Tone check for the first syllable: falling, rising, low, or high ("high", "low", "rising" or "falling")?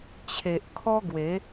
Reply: low